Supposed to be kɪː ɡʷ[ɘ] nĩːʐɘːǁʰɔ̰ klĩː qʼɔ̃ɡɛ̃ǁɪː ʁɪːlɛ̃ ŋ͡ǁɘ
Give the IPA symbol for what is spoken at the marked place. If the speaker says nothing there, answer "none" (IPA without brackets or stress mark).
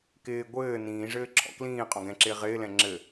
ɘː